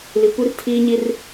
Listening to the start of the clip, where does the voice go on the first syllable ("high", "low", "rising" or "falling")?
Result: low